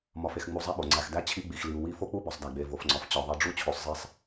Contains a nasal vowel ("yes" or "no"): no